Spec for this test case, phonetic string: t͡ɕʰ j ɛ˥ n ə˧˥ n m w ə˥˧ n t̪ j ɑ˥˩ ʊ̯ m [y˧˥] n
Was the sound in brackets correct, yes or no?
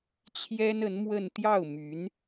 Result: yes